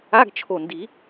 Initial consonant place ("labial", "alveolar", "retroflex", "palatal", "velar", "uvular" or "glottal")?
velar